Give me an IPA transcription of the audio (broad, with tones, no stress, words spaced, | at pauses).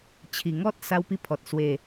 t͡ɕʰi˨˩ ŋɔ˦t̚ sa˦wpi˥˧pʰɔ˨t̚ swe˨˩